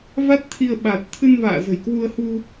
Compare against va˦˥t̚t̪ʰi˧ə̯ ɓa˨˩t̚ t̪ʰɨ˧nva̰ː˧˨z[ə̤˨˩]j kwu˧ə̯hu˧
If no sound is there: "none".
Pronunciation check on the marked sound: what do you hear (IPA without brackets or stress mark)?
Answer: ə̤˨˩